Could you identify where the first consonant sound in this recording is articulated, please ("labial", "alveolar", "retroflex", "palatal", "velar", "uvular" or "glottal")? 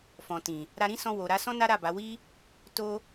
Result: labial